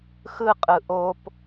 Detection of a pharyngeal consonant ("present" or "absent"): absent